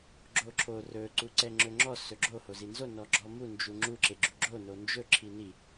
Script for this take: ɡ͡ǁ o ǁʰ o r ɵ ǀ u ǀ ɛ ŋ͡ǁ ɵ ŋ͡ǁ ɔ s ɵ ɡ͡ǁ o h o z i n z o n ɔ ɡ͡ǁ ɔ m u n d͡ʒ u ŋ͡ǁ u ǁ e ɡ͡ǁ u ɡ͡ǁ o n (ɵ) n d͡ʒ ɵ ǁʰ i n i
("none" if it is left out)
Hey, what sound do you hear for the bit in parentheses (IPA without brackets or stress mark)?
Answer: o